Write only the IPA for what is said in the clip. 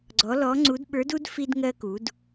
ɡ͡ǀ ɔ˧˥ l ɔ˧˥ ŋ͡ǀ u˧˥ d ɓ ə˞˧˥ d u˥ d f i˥ d ŋ ɜ˧ k u˩˧ d

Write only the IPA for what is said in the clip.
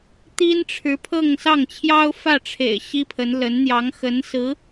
t̪ i˥ n ʈ͡ʂʰ ɻ̩˧˥ pʰ ɤ˥˧ ŋ s ɑ˥˩ ŋ t͡ɕʰ j ɑ˥ ʊ̯ f ä˥˩ ʈ͡ʂʰ ḛ˨˩ ɪ̯ ɕ i˥ pʰ ə˧˥ n l ə˧˥ n n̪ j ɑ˧˥ ŋ x ə˧˥ n s ɹ̩˧˥

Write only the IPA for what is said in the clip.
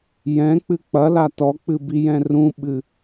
j ɛ̃ k͡p ɨ k͡p ɐ l a t ɔ k͡p ɨ b i j ɛ̃ r ũ ɓ ɨ

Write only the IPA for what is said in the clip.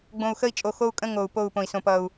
ɡ͡b õ˨ u̯ x ə˦ i̯ t͡ʃʼ o˨ x o˦ u̯ kʼ ə̃˦ ŋ o˨ u̯ p o˦˨ u̯ p õ˨ i̯ s õ˨ p ʌ˨ u̯

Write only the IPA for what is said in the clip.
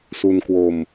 s u˧ n k w o˧ m

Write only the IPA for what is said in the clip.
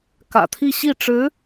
k ä̰˨˩ t̪ʰ i˥˧ ɕ i˥˩ ʈ͡ʂ ɻ̩˧˥

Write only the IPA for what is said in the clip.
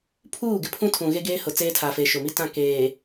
pʰ uː˦˨ ɡ ɪ˨ pʰ ũ˦ tʰ ũ˨ ɣ e˦ ɡ eː˦ h ʊ˨ t͡s eː˦ tʰ aː˨ f eː˨ ʃ ʊ˨ m i˦ t ã˦˨ k eː˨

